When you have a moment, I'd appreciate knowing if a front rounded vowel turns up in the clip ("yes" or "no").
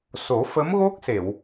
no